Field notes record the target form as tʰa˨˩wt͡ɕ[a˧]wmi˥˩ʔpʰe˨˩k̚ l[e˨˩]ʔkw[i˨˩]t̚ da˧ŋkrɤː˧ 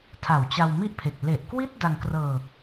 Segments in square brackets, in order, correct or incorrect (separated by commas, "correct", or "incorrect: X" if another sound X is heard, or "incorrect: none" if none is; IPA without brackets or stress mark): correct, correct, incorrect: i˥˩